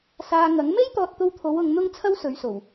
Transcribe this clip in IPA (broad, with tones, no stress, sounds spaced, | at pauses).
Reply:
s aː˧ ŋ ɐ˨˥ ŋ m e˥ j t̪ ɔː˧ t̚ t̪ o˧ w t̪ʰ o˨˧ w ʊ˨˧ ŋ n̪ ʊ˥ ŋ t͡sʰ ɐ˥ w s ɵ˨˧ ɥ s o˨˩ w